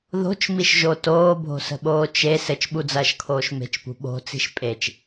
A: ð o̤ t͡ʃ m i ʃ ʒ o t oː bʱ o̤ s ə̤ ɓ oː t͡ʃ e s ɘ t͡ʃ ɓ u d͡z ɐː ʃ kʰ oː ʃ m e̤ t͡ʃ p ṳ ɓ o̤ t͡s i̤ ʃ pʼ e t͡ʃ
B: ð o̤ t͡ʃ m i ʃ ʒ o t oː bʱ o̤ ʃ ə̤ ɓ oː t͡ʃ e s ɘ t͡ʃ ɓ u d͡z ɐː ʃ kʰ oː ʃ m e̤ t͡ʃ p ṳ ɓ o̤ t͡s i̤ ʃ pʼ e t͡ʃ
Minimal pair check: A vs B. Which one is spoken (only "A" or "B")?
A